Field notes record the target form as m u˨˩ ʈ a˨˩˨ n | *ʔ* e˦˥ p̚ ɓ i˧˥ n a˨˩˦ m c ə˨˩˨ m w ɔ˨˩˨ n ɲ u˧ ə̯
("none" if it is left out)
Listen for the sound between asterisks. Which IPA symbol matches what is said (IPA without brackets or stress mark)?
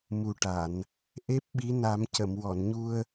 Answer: ʔ